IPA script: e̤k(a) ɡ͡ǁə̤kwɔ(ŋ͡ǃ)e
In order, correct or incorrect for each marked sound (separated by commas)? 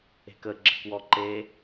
incorrect, incorrect